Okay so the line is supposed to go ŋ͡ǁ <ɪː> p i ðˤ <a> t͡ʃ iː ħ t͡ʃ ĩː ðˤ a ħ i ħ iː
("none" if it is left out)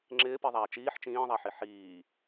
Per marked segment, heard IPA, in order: ɪː, aː

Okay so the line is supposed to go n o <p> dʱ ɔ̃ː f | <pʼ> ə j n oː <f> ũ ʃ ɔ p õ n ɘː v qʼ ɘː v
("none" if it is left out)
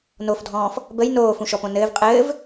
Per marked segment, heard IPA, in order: f, b, f

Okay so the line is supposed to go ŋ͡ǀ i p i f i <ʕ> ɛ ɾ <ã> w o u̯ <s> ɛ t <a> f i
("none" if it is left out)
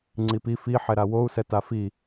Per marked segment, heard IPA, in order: ħ, a, s, a

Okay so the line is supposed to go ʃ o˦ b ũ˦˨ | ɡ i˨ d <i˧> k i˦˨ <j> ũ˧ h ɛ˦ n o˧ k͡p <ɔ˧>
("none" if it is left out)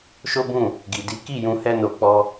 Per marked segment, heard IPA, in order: i˨˦, j, ɔ˧

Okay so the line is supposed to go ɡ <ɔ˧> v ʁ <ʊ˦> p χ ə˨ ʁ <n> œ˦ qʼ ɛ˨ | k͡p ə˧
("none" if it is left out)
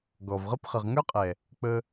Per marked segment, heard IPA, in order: ɔ˨, ə˦, ŋ

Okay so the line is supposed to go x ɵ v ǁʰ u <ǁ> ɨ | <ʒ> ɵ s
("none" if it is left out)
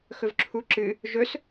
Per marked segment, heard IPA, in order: ǁ, ʒ

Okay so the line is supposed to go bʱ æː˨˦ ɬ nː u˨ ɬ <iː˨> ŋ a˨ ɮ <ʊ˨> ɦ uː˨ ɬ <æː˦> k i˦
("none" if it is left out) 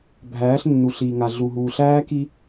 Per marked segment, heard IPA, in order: iː˨, u˨, æː˦

